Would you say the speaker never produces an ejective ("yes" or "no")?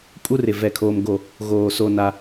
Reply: no